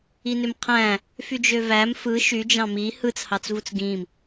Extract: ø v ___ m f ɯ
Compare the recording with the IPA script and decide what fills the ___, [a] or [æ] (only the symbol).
æ